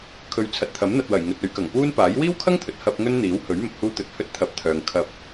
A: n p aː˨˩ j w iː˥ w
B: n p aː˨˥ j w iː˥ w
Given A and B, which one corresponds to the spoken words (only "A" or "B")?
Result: B